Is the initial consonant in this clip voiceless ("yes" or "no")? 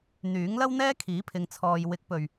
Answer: no